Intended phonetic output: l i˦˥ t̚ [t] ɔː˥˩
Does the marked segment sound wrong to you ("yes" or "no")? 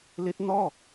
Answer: yes